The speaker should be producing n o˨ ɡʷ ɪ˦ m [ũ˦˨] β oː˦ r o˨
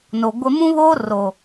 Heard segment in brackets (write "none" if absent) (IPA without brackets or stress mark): ũ˦